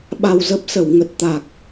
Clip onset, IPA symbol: ɓ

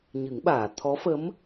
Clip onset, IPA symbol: ɲ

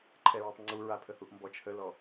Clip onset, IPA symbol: ǃʰ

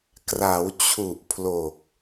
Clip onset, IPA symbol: k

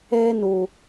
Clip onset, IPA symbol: eː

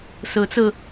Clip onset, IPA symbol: s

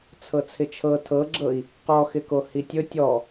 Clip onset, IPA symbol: t͡sʰ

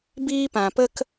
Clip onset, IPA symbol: b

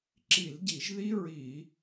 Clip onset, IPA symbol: ǁ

